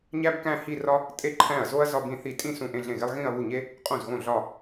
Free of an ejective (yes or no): no